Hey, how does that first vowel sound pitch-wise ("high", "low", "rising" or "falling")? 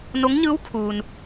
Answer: rising